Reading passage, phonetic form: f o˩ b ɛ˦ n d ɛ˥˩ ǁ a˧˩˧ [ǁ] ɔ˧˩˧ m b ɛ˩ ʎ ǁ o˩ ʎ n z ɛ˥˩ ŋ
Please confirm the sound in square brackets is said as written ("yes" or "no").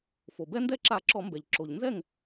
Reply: yes